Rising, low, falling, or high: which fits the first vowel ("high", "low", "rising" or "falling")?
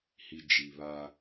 low